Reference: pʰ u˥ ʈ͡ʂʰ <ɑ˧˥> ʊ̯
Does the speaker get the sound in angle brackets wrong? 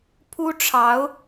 no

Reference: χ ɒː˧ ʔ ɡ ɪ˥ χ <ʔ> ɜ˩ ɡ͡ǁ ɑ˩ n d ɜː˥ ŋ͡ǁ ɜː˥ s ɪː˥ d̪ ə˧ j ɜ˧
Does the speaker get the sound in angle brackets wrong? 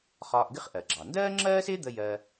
no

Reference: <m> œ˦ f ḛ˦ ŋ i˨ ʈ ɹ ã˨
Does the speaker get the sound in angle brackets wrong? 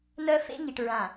yes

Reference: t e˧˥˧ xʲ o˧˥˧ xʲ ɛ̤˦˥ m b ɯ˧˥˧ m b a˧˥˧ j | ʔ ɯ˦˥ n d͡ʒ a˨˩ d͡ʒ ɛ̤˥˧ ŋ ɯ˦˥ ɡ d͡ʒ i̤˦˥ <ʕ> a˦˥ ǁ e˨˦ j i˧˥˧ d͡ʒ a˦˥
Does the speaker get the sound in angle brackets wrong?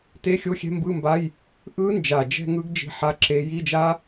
yes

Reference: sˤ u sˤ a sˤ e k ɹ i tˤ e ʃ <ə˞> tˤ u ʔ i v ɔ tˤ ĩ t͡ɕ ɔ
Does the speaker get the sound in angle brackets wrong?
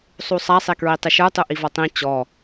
no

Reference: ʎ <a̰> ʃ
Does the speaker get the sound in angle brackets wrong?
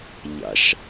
no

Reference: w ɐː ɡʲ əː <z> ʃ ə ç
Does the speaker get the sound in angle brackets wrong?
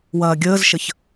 no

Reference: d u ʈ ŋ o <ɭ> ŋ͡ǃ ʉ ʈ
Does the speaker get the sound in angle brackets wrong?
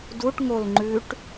yes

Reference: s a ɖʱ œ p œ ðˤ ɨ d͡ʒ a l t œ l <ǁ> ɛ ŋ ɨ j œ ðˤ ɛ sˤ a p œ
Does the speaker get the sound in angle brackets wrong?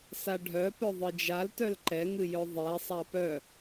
yes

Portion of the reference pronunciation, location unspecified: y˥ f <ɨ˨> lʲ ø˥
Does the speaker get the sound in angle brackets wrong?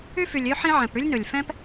yes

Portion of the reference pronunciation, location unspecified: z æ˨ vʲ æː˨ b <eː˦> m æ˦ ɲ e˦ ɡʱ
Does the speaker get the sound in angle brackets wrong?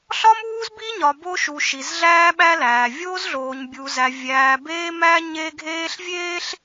no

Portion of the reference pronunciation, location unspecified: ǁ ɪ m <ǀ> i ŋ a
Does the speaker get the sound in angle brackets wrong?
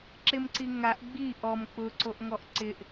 no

